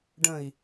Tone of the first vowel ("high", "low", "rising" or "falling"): low